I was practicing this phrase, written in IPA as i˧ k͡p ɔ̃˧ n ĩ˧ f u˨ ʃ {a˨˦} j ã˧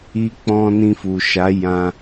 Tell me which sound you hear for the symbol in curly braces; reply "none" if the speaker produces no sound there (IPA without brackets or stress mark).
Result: a˨˦